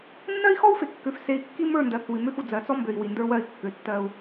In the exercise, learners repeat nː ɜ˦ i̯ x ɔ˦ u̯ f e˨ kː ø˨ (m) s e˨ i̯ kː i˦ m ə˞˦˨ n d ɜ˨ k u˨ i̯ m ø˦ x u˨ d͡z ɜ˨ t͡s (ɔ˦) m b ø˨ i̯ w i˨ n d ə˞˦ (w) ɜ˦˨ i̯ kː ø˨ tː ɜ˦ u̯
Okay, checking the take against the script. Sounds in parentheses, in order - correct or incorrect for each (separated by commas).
incorrect, correct, correct